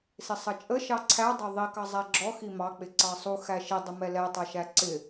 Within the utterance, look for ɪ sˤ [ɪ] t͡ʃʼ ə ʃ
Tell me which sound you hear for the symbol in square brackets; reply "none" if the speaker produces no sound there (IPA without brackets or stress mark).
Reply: ə